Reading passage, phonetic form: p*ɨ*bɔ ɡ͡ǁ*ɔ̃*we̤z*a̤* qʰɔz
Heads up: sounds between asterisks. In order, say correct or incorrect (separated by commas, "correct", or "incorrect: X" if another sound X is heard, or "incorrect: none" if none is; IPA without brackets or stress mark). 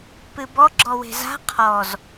correct, incorrect: ɔ, correct